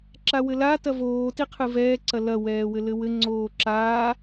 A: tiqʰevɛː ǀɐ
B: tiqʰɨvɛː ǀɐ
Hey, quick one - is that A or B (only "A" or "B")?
B